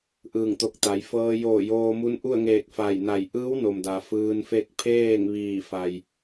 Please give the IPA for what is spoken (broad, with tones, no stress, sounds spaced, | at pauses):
ʔ ɯː˧˩ ŋ t̪ o˧˩ k̚ t̪ a˩˧ j f ɤː˧ j oː˧˩ j oː˧ m u˧˥ n ʔ u˥˨ ə̯ ŋ eː˧˩ k̚ f a˧˩ j n a˧˩ j ʔ ɯː˧˥ w n o˩ m d a˩ f ɯː˧ n f e˥˨ k̚ pʰ eː˥˨ ŋ ʋ iː˧˩ f a˩ j